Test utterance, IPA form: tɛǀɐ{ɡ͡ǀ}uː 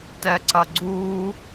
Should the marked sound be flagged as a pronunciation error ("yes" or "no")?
no